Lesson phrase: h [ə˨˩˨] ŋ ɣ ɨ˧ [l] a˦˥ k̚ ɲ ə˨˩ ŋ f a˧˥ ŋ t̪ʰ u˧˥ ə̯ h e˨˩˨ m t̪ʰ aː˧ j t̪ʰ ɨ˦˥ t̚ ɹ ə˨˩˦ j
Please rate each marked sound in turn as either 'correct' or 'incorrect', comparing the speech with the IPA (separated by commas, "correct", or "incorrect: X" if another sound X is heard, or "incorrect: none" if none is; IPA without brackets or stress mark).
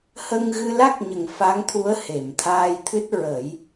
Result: incorrect: ə˧, correct